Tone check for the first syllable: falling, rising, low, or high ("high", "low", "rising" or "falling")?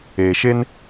low